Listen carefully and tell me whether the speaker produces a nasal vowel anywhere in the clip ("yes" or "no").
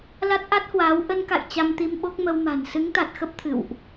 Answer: no